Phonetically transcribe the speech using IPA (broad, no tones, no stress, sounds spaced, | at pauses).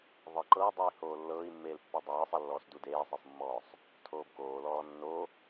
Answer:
ðˤ ɤ ǃ ɤː dˤ ɯ i̯ h oː lː ɤː i̯ mː eː l pː e dˤ ɤː sˤ ɤ lː ɔː s d u d eː sˤ e sˤ mː ɔː sˤ | tʰ oː b k oː l ɔː nː o